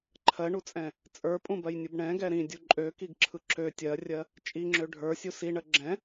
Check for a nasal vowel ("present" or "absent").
present